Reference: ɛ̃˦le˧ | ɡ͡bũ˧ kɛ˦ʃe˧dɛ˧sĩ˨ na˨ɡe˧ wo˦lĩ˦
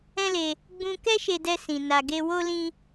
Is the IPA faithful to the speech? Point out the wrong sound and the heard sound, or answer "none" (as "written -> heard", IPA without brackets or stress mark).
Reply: none